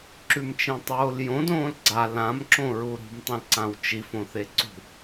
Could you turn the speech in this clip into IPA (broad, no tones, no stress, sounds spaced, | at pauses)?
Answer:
ǁ ʉ m t͡ʃ ẽ tˤ oː l j õ d õː l ɡ͡ǀ a l ã m ǁ õ ɹ u ɾ ṳ m tˤ ĩ l ǀ ã w t͡ʃ i f õ θ e ǀ ṳ